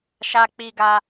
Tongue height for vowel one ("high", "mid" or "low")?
low